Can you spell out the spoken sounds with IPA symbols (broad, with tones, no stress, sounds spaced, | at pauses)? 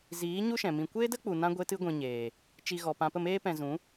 z iː˨˦ ɲ u˦ ʃ ɛ̃˨ m ĩ˧ kʷ eː˦ d ə˦ k͡p u˨ n ã˦ ɡʷ e˦ t ɨ˦ ɡʷ ĩ˧ ɲ eː˨ | t͡ʃ i˧ ɣ ɔ˨ p ã˨ p ə˦˨ m eː˦ p ɛ̃˧ z ũ˨˦